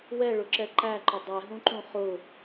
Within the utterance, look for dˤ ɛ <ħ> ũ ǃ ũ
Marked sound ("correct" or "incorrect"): incorrect